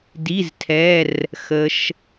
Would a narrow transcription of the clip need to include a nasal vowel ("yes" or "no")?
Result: no